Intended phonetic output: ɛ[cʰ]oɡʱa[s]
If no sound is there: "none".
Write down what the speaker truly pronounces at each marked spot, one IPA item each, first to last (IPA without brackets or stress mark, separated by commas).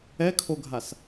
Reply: kʰ, s